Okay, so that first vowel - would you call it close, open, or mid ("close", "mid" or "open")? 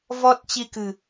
mid